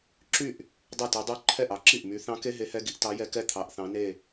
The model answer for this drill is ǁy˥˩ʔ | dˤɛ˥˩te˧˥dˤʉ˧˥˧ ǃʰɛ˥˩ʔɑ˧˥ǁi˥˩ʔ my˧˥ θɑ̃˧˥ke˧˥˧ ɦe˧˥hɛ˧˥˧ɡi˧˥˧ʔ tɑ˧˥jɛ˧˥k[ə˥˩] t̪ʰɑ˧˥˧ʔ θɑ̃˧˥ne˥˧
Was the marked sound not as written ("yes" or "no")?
yes